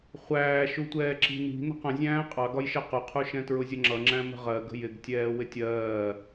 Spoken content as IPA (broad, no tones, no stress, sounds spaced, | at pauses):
χʷ æː ʃ u tʷ ɛː ǁ i̤ n i̤ n ə̤ q ə̃ zʲ æ̃ː qʼ ɑ ɡ ɒ j ʃ ɜ q ʊ qʰ u ʃ ɛ̃ t ɹ ʊ zʲ ə ŋ͡ǁ ʌ ŋ͡ǁ æ̃ m ə̤ ʁ ɜ ɡ ə̤ j ɪ ɡ tʲ ɛː w ɪ tʲ ɜː